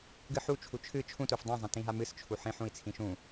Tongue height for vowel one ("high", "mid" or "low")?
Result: high